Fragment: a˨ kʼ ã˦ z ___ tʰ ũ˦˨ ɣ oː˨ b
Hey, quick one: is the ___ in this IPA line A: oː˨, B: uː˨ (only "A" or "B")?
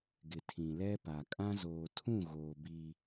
A